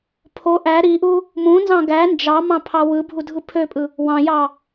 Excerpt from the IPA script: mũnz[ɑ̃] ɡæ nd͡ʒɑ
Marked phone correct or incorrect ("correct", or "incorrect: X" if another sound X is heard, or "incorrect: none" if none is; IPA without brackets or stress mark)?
correct